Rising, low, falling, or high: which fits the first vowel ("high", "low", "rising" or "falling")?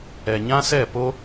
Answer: low